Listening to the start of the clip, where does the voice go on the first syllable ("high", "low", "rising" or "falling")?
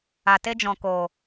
low